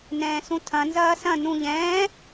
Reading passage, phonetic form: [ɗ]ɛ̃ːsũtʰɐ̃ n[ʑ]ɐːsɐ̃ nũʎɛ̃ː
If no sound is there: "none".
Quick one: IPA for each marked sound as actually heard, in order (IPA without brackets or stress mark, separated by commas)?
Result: n, z